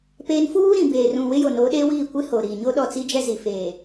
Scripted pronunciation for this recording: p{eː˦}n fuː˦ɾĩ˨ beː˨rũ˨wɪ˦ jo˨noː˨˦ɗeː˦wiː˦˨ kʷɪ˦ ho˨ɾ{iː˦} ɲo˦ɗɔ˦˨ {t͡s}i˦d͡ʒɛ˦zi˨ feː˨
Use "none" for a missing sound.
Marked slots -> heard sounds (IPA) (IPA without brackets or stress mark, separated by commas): eː˦, iː˨, t͡s